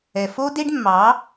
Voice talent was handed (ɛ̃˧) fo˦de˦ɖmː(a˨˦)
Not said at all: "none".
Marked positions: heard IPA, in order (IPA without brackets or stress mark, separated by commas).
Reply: ɛ˧, ɑ˨˦